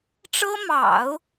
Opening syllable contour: high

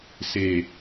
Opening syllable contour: low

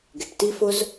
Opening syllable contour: low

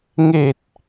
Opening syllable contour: low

